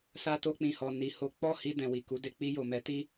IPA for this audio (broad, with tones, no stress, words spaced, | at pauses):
sa˧ to˧k͡pĩ˨hɔ˨ ni˨ ho˨˦ k͡pɔ˦˨hi˧dɛ̃˨ wi˨ku˨˦de˧ k͡pi˧jo˨mɛ˨˦ti˦